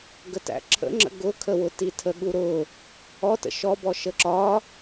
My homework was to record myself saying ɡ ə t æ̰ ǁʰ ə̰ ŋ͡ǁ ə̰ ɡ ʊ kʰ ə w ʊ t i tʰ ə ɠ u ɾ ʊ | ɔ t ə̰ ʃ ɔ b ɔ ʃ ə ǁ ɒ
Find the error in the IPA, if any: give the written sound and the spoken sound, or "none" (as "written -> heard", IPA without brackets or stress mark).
none